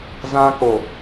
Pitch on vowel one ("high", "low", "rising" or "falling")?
high